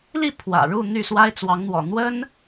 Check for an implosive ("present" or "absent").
absent